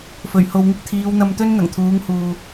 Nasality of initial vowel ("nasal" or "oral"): oral